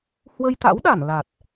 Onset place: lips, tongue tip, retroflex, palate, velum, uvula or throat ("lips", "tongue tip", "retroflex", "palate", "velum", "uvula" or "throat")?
throat